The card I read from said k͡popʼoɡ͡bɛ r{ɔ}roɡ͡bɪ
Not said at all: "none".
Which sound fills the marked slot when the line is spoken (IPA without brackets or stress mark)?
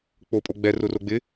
ʊ